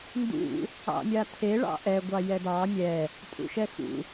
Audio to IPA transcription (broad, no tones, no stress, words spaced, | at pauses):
ndṵ | ɑ̰mʲatʰe ɭɑ̰ʔɛ ɡʷɑjɛdɑ mʲɛ | tʼṵʃɛxṵ